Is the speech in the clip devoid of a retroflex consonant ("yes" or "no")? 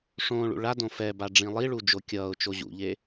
no